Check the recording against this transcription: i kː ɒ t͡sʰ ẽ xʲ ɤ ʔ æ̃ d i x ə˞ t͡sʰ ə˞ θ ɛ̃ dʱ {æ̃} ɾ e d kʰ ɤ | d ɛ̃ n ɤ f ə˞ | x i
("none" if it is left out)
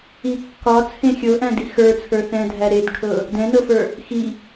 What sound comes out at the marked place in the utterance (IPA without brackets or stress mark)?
æ